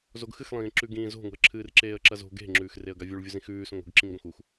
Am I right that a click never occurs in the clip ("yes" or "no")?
no